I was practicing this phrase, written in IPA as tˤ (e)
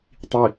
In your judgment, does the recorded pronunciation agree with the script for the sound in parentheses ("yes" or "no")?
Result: no